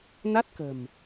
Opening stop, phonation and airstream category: plain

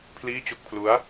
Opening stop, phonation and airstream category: aspirated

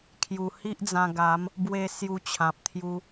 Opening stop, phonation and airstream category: aspirated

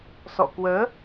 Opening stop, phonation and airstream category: plain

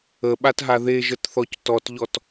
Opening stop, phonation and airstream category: implosive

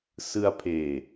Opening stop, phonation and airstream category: aspirated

